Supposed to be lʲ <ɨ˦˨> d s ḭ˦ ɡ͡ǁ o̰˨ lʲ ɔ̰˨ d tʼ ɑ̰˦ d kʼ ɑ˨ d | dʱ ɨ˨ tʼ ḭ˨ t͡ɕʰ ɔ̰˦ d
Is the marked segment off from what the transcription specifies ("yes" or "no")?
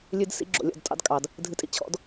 yes